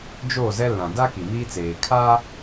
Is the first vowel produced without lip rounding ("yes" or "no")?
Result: no